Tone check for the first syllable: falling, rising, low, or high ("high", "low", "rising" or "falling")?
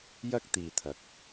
high